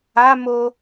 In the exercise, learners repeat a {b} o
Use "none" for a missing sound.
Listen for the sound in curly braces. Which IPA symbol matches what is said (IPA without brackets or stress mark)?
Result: m